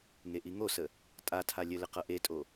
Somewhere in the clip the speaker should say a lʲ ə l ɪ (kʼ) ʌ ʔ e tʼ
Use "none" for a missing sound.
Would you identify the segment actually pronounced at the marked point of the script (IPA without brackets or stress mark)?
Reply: q